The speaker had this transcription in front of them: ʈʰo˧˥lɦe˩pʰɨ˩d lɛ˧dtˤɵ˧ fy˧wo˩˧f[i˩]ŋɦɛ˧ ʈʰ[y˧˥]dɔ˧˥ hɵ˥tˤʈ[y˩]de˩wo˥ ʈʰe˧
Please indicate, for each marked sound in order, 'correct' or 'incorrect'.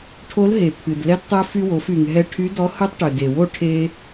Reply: incorrect: y˩, correct, incorrect: ø˩

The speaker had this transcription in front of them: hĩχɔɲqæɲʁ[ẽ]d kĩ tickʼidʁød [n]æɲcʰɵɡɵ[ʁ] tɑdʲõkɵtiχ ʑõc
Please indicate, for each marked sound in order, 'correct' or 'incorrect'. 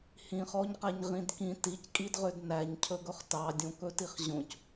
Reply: incorrect: ĩ, correct, incorrect: χ

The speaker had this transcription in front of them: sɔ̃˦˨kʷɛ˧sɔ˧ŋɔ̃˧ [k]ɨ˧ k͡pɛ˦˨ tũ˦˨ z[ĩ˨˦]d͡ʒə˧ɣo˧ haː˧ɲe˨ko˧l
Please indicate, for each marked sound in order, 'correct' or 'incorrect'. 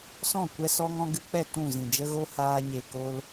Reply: incorrect: ɡ, incorrect: ĩ˨

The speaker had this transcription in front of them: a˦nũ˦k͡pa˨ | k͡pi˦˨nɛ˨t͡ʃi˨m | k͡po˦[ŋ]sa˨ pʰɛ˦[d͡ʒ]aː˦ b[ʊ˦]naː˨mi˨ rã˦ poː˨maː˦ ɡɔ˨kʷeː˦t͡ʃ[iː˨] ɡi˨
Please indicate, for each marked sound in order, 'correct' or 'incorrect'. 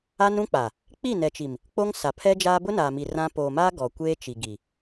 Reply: correct, correct, correct, incorrect: i˨

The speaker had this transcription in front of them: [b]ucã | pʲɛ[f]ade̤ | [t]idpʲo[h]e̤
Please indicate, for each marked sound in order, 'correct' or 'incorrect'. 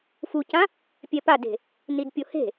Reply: incorrect: f, incorrect: p, incorrect: n, correct

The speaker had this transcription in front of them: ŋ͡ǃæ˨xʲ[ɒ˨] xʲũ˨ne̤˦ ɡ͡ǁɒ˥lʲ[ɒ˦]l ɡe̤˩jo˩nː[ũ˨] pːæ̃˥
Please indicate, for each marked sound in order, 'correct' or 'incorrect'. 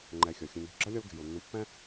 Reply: incorrect: ɒ˩, correct, correct

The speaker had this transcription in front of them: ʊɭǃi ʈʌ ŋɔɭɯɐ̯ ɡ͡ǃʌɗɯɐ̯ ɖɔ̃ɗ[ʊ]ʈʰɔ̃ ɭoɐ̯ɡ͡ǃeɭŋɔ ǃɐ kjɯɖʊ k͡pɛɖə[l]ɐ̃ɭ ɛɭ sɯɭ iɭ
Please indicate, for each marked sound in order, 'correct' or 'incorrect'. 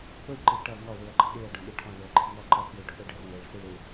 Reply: incorrect: ɯ, incorrect: r

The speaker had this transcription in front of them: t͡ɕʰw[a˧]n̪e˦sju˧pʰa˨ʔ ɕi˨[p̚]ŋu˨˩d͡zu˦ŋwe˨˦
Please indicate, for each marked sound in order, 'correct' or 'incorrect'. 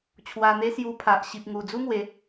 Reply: correct, correct

